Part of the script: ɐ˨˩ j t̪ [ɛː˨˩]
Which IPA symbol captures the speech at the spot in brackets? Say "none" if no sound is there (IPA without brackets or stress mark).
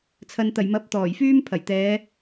ɛː˨˧